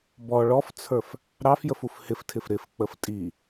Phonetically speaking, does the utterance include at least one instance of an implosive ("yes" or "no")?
no